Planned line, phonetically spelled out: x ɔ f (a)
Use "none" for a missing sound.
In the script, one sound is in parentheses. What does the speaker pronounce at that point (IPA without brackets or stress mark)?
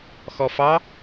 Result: ɑ